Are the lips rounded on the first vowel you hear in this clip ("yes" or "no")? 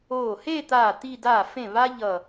yes